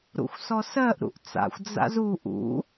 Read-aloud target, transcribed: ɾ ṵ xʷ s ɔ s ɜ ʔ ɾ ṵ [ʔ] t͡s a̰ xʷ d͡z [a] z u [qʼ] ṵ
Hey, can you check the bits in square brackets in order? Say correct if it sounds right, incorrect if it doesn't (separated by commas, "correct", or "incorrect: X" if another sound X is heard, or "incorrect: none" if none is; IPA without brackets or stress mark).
correct, incorrect: a̰, incorrect: ʔ